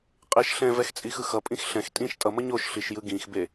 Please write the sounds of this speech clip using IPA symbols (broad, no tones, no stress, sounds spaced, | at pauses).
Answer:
qʼ e ʃ ɬ ɛ̃ v ɛ x t͡sʼ i x ɯ x ʌ pʼ ĩ x ɬ ɛ̃ x tʼ ĩ ʃ tʼ ʌ m ʌ ɲ o ʃ ɬ i ʃ j ɯ ɡ ĩ x b e